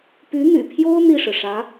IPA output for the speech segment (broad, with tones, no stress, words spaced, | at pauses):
py˧˥n̪y̰˨˩pʰjo˥ʊ̯ n̪i˥˩ʂɻ̩˩ʂä˧˥